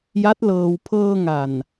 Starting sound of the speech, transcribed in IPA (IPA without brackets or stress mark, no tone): j